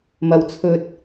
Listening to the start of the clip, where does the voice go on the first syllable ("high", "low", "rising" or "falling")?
low